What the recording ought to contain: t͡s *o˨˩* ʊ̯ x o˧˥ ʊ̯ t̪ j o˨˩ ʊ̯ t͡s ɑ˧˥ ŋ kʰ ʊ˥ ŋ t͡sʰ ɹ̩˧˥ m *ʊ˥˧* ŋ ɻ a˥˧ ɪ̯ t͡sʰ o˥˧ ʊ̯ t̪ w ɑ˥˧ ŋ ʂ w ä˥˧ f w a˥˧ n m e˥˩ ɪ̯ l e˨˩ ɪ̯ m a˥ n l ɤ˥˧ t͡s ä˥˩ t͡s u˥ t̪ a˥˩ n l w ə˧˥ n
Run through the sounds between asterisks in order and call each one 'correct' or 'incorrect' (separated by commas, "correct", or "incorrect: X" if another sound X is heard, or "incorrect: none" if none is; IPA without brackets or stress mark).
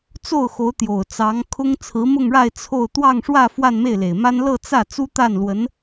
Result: incorrect: o˥˩, correct